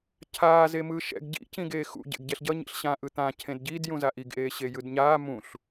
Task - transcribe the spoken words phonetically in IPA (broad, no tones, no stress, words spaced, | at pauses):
cʰaː zemɯːʃɛ̰ɡ ɟḭ cĩɡeːxṵ ɟḛɡɟɛɬɟʌ ɲḭɬɕã ʔɯt̪ã cʰẽdɟid jũzaʔiɡ ʔeːɕejɯdɲaː mũɬ